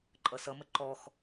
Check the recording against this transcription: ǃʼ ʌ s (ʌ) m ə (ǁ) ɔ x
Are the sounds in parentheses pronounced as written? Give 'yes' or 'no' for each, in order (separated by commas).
yes, no